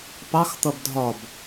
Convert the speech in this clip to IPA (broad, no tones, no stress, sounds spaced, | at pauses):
p ɑ x t̪ ʌ b dʱ ɒ b